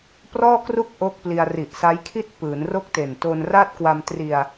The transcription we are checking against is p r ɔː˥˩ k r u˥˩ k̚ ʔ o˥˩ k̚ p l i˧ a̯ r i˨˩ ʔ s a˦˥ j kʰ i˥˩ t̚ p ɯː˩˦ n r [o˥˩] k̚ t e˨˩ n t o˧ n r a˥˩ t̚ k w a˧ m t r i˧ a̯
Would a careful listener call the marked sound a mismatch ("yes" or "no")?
no